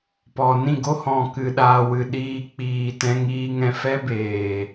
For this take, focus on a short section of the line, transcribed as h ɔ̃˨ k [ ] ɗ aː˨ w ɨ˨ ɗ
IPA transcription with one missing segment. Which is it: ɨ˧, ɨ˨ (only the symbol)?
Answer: ɨ˨